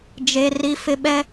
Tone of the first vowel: high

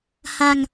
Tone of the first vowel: low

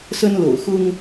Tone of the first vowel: high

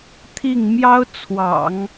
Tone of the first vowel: falling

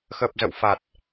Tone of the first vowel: low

